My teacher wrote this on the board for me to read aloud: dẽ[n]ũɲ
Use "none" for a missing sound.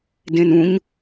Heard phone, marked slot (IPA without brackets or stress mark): n